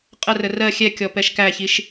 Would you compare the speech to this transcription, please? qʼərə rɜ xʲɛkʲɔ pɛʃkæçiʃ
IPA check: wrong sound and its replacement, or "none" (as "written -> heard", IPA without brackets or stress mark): none